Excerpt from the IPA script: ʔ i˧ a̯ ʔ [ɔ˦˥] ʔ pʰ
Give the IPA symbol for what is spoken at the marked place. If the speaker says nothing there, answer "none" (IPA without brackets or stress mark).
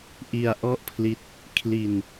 ɔ˥˩